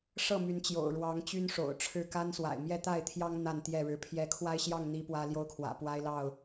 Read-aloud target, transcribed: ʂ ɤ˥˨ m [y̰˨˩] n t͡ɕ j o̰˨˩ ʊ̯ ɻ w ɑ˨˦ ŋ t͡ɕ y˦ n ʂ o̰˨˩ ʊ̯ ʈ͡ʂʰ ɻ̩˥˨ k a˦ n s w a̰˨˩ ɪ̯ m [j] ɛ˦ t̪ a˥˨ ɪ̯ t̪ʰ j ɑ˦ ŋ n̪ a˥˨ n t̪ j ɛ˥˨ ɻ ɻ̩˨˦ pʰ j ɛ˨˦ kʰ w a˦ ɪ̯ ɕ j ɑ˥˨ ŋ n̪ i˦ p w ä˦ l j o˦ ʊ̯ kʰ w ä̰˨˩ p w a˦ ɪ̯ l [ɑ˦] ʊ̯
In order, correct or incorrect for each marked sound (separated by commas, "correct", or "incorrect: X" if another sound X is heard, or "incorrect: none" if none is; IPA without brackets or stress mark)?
incorrect: y˨˦, correct, incorrect: ɑ˥˨